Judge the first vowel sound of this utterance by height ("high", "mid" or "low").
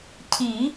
high